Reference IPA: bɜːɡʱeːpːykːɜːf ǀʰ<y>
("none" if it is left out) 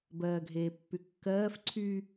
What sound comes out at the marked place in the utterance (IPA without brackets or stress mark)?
y